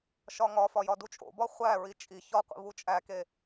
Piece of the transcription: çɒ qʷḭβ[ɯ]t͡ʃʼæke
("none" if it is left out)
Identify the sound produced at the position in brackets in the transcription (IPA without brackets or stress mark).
u